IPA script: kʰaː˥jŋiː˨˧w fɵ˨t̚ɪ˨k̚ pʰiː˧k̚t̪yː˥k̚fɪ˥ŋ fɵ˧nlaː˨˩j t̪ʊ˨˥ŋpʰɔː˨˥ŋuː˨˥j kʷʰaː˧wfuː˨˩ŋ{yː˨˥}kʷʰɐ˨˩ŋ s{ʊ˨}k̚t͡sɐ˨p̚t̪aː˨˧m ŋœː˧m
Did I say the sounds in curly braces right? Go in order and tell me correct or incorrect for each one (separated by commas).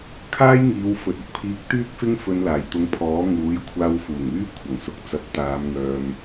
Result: incorrect, correct